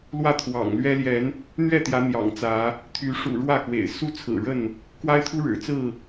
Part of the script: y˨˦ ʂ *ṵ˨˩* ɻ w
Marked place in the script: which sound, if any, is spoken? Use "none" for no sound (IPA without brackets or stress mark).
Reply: ṵ˨˩